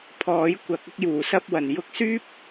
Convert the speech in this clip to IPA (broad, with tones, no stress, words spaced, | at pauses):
pʰɔː˨˥j kʷɐ˨˥k̚ ʊ˧k̚juː˨˩sɐ˧p̚wɐ˨˩n jʊ˧k̚syː˥p̚